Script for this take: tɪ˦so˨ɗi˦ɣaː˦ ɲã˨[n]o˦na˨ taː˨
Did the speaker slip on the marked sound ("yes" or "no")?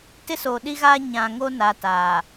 yes